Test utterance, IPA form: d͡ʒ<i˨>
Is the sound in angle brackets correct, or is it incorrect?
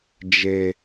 incorrect